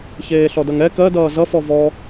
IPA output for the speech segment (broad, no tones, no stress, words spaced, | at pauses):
çeːɬɔdʌŋɛ kɜ dʌːzʌ fɔvɔ